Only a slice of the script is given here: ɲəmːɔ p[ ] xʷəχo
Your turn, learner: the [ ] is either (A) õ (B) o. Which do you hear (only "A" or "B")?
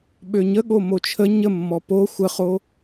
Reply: B